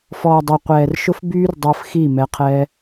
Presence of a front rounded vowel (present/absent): present